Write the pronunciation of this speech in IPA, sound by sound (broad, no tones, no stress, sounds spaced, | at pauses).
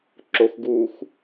ǁ o x ɡ u x